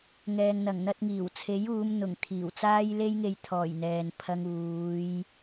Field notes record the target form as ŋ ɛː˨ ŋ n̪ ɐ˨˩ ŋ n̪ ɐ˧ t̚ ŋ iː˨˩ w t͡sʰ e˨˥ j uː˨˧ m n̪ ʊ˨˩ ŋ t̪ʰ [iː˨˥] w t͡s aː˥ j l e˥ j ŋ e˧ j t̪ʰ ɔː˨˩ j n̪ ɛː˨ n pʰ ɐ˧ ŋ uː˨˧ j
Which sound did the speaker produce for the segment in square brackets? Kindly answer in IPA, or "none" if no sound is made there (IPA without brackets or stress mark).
iː˨˩